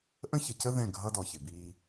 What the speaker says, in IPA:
ʔə̃˦çə˨cə˦ ðɛ̃˦˨ɡʱʌ˦ dɔ˨çɪ˨biː˦

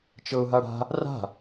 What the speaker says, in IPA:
t͡ʃɤʊ̯ɦaɽa̤ | ra̤

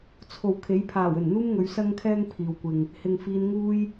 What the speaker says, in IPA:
t͡sʰo˨wkʰe˨˥j pʰaː˨˩w ɵ˨˩nn̪uː˥mŋɵ˨˧ɥ sɐ˥ŋkʰɛː˥ŋ pʰiː˨wkʷɪ˨ŋ | hɪ˨ŋfiː˨˧n ŋuː˥j

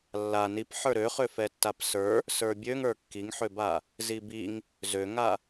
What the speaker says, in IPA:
lːa nipħə˞ ɾøχøfɛ tːapsə˞ | sə˞bʲøŋə˞ kːiŋħøba | zibiŋ | zøŋa

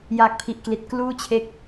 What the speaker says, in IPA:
jaː˨˩k̚pʰi˨˩ʔkli˨˩t̚ kluː˥˩ t͡ɕʰe˦˥k̚

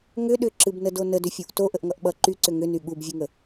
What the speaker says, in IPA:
ŋʏ ɗʏǁɨbnədo nədʏfʲuʔ toʔəʔŋʌʔ ɓʌ ǃyǀʏ ŋʏny ɠubvʲɨŋə

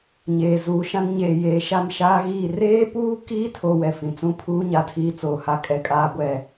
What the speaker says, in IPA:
ɲeː˨zuː˨˦ʃã˦n ɲeː˨jeː˨ ʃa˦˨mʃaː˦ɣiː˦˨ reː˦puː˦kiː˦ tʰo˦wɛ˨fĩ˨ t͡sũ˦pʰuː˦ ɲa˦˨tʰiː˦t͡soː˨ha˦ kʼɛ˨kʼaː˦ ɡʷɛ˦

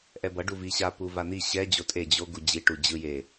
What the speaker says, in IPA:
ʔɛbʌ ɖuviɕa puvan̪i ɕɛ d͡ʑotʼe d͡ʑo ɡud͡ʑi ʈud͡ʑɯ je

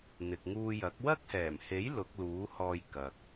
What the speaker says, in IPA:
n̪ɪ˨k̚ŋuː˧jɐ˨˥k̚ wɐ˥k̚hɛː˨˩mhe˨˥j lʊ˨˥k̚luː˨˥hɔː˧j kɐ˨k̚

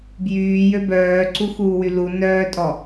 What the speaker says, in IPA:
bjyːjø bœːǀuxuːwy lu nœːtʼɔ

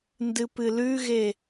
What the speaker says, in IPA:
ndɨpɨlʉɣe

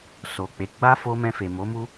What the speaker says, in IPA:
so˨k͡pe˨˦ ɡ͡ba˦fo˧ mɛ̃˧fe˨mo˨˦mu˦

